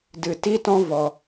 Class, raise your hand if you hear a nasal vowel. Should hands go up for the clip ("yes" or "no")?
yes